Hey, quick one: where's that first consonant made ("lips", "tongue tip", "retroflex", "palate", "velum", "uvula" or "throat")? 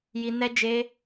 palate